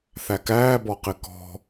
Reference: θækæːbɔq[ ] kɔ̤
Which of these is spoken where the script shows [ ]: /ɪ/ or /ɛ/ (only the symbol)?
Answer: ɪ